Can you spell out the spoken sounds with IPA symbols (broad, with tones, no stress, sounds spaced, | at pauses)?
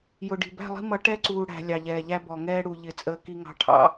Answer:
j ʊ˨ ɖ i̤˨ b æ̤˦˨ lˠ i̤˦ m ʌ˨˦ ʈ ɛ˦ ǀ uː˨ ɽ æ̤˨ lʲ ɑ˨ ʎ ɛː˨ ʎ æ˦ b ɔ˨ ŋ ɛː˦ ɽ u˨ ʎ ɪ˨ t͡sʼ əː˨ k i˨ ŋ ɑ̤˨ ʈʰ ɑ̰˨